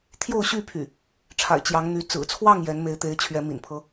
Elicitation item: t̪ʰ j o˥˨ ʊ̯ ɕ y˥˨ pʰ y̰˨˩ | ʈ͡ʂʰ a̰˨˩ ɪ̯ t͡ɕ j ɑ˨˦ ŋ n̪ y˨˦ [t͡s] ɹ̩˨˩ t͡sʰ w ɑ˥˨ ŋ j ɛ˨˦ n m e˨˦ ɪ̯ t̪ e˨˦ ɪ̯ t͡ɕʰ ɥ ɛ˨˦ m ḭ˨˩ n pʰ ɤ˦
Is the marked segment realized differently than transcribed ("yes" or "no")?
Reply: no